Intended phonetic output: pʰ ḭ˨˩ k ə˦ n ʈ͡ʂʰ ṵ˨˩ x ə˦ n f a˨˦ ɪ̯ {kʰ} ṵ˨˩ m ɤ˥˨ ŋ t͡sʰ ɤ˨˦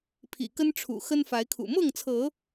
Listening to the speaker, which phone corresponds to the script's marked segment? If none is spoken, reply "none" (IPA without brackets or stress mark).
kʰ